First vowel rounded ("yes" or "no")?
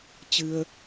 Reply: no